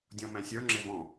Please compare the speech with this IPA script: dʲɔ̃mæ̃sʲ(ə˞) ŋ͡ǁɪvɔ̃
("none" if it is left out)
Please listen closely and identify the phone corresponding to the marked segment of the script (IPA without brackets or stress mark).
ə˞